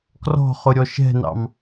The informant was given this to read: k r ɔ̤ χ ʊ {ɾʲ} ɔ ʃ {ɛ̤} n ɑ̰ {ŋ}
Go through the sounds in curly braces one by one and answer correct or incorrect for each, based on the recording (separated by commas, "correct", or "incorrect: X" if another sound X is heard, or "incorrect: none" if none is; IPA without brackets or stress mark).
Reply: correct, correct, incorrect: m